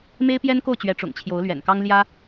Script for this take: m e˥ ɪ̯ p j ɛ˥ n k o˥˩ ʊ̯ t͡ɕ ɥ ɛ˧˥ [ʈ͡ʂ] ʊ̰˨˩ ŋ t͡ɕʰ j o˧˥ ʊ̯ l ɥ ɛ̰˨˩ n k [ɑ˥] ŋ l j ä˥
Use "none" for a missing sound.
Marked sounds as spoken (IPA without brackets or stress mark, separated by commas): ʈ͡ʂ, ɑ˥